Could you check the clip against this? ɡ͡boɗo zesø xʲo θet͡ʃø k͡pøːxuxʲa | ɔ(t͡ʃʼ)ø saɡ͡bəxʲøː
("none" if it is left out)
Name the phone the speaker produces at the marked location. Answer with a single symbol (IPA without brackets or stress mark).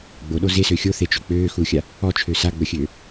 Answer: t͡ʃʰ